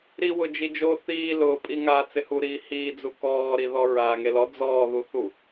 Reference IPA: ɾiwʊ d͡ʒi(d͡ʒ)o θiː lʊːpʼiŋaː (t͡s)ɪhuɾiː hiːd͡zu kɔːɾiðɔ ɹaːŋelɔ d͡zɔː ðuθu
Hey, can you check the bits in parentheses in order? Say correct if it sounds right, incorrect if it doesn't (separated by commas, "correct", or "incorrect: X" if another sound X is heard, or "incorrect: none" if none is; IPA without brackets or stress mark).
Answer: correct, correct